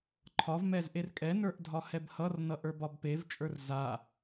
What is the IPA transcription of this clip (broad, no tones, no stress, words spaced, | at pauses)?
ǃʰɒv mɛzʔerkʼɛnə˞ʔ dʱɒhɛbhʌrnʌ ʔə˞bɒbpevt͡ʃʼə˞r za